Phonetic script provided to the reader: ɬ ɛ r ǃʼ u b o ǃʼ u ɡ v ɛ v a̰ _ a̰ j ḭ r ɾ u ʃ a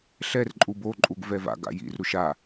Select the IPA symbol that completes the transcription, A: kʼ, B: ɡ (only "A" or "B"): B